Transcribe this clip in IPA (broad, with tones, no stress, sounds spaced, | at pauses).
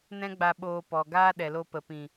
n ɛ̃˦ ɡ͡b a˧ ɓ oː˧ p ɔ˨ ɡ aː˦ ɗ ɛ˨ l o˧ p ə˨ p ĩ˨